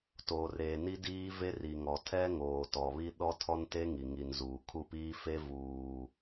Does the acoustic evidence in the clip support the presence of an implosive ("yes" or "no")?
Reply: yes